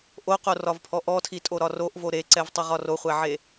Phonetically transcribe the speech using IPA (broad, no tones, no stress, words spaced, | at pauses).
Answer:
ʔoqorɒvpʰɔ ʔɔtʰitʼoɾɒ roʔvo ɾeǀɛvtˤʊʁɒ roχʷɛʕe